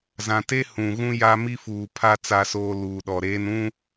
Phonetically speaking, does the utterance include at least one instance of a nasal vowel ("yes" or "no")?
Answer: yes